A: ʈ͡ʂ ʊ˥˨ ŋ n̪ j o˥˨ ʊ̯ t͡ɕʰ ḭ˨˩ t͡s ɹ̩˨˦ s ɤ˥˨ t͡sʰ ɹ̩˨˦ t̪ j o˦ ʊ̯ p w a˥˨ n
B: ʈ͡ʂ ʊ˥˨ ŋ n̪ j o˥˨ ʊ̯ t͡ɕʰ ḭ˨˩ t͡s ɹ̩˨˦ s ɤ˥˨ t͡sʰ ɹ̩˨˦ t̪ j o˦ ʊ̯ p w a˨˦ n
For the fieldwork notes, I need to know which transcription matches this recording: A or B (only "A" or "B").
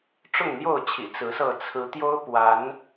B